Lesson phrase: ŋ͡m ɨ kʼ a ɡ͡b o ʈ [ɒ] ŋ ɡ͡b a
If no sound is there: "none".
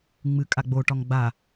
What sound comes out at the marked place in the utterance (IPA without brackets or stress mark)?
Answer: ɒ